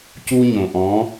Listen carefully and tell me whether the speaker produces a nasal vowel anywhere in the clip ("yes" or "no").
yes